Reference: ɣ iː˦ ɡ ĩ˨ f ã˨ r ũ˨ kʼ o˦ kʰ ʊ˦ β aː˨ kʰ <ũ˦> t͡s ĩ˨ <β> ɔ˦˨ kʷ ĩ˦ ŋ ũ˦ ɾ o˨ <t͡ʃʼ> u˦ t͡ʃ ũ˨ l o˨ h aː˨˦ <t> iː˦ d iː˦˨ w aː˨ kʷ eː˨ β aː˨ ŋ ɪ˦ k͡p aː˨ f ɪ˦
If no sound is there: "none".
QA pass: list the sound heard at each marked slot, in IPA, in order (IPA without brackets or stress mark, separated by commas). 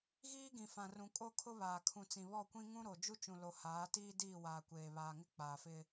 ũ˨, β, d͡ʒ, t